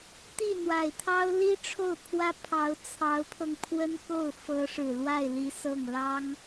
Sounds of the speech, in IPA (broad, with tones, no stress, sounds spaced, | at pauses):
t̪ i˥˩ n̪ w a˨˩ ɪ̯ t̪ʰ ɑ˥ ʊ̯ l i˥ ʈ͡ʂʰ o˥˩ ʊ̯ pʰ w ä˥ pʰ ɑ˧˥ ʊ̯ t͡sʰ ɑ˧˥ ʊ̯ pʰ ɤ˧ ŋ pʰ w ə˥ n k o˥˩ ʊ̯ f ɤ˧˥ ʂ ɻ̩˨˩ l w a˥˩ ɪ̯ l i˧˥ s ɤ˥˩ ŋ l ɑ˥ ŋ